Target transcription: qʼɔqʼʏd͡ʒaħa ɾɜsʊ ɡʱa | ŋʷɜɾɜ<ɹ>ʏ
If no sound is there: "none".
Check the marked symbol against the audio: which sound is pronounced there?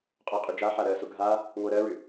ɹ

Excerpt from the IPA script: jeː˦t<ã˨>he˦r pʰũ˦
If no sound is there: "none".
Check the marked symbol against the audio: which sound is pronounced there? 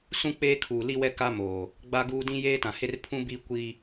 ã˨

